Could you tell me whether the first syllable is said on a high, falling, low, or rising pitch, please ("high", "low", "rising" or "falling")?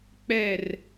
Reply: falling